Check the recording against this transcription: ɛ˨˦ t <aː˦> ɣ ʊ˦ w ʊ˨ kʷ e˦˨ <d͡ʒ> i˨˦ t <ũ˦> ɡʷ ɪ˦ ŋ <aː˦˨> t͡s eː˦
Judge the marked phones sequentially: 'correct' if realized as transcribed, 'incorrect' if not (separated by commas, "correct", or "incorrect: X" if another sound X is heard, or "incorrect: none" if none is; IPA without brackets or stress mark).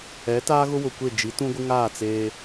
correct, correct, correct, correct